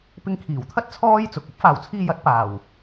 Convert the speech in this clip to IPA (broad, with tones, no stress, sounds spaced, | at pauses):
p ɪ˧ ŋ kʰ iː˨˩ w t̪ʰ ɐ˥ t̚ t͡sʰ ɔː˥ j t͡s ʊ˨ k̚ ɐ˥ p̚ f aː˨˧ w t͡sʰ iː˧ j ɐ˨˥ t̚ p aː˨˩ w